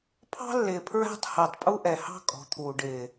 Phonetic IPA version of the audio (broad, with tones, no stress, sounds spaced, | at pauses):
pʰ ɑ̤˦ lː ɪː˨ pʰ ɹ æ̤˦ tˤ h æ˨ tˤ pʼ u˦ ʔ ɛ˨ h ɑ̤˦ kʼ ɔ̤˨ t̪ʰ uː˨ ɖ ɪː˨